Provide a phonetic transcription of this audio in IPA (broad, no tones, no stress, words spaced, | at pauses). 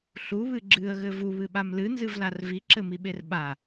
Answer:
ɬuβɨ ɡ͡ǁɨə̯ɣɘ vuβɨɓam lɨnzɨvlar viǁɘmiɓer ɓa